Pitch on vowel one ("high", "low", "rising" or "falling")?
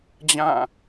falling